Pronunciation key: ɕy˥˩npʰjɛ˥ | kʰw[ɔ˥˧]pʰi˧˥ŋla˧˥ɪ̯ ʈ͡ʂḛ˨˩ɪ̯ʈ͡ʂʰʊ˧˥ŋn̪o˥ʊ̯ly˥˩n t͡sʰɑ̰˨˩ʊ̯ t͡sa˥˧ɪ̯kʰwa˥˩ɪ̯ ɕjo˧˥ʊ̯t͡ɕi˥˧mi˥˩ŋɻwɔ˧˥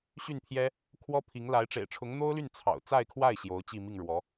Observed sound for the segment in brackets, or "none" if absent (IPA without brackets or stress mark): ɔ˥